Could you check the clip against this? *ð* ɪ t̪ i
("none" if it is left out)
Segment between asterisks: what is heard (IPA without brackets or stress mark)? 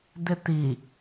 d̪